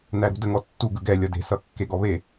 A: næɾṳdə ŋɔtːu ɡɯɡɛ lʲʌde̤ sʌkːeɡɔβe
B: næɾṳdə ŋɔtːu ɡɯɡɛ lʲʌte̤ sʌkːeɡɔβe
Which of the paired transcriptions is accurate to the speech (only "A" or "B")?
A